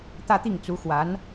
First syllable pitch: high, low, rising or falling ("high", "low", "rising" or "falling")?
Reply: falling